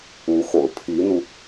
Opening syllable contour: rising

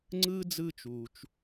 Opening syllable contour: high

